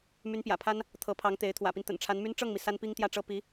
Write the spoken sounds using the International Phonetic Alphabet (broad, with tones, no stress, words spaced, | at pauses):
my˧˥npjä̰˨˩pʰa˥n | t̪ʰɤ˧˥pʰɑ˧˥ŋt̪e˧˥ɪ̯ t̪ʰwä̰˨˩pi˦n t̪ə̰˨˩nʈ͡ʂʰa˧˥nmy˥n ʈ͡ʂɤ˥˩ŋmi˩ sa˥npi˥ŋ t̪jä˥˩ʈ͡ʂɤ˥ pi˧˥